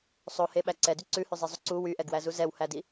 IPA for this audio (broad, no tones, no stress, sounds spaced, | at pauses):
sˤ o h e ɓ æ ǀ ɛ d y ǀ ʉ h ʉ zˤ e zˤ u ǀ u w y ʔ ɛ ɡ w æ z u z ɛ w h æ d i